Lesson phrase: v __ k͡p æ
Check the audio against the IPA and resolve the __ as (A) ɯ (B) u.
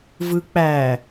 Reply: A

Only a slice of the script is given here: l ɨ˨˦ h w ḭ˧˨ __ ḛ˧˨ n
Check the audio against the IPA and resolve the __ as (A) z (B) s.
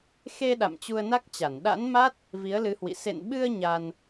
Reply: B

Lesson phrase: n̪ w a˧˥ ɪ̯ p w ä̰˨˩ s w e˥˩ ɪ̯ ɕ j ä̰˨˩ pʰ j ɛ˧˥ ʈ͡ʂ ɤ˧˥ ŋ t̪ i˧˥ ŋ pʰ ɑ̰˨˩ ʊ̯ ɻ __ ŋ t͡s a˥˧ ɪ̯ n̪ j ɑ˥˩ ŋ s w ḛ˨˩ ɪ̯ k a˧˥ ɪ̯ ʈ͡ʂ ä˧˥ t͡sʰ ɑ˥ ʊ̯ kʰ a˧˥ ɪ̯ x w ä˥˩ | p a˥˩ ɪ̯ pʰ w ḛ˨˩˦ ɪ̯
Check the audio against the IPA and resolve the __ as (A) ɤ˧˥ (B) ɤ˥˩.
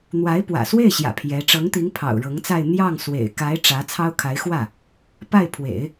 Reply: A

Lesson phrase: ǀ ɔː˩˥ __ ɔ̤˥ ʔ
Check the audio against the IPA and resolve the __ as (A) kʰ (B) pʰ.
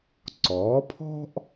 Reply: B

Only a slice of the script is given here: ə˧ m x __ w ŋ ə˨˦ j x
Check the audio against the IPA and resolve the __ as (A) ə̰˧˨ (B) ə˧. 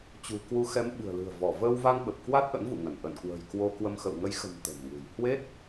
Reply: A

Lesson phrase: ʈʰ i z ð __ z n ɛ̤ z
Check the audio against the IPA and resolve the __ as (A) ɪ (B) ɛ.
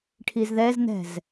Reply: B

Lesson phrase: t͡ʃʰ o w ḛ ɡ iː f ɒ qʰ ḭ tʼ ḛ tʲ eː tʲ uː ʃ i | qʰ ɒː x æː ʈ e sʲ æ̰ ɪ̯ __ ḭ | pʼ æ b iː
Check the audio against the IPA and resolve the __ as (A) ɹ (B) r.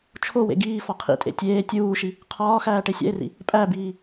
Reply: B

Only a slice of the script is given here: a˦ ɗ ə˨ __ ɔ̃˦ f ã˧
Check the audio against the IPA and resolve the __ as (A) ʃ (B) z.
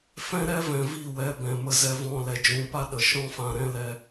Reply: A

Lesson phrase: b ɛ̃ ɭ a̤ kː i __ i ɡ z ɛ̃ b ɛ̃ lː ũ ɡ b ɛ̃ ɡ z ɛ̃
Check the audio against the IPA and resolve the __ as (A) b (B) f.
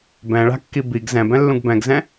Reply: A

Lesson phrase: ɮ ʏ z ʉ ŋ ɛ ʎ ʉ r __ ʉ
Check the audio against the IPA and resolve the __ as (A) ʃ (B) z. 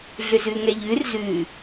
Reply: B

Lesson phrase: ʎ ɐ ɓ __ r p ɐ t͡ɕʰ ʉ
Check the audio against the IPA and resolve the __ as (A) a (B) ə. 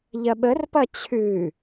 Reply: B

